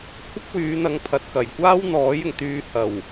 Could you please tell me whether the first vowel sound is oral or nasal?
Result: oral